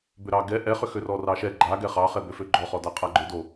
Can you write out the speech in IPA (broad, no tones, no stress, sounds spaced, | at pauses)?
b ʏ ɾ ɑ ɡ ɛ ʔ ɛ χ ʏ x ø r ɔ r ɑ ʃ ɛ ɡ͡ǃ a ɡ ɛ χ ɑ χ ɛ b ø f ø ɡ͡ǃ ɔ χ ɔ d a qʼ a ɡ͡ǃ ʏ d o